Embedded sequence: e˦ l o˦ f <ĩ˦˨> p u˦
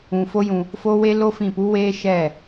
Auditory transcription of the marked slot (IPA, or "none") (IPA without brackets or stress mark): ĩ˦˨